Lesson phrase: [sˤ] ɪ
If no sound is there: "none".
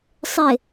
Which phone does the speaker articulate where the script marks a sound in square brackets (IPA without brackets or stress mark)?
sˤ